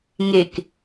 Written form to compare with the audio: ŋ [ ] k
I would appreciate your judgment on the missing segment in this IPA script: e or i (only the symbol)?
e